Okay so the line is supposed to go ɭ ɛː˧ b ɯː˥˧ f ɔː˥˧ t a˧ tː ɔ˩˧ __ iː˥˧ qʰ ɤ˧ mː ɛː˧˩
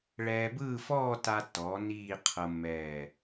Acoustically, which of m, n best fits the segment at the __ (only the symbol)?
n